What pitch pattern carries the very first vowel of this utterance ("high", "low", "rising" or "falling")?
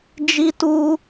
high